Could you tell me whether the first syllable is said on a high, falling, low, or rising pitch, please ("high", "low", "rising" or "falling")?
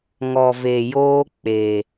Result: low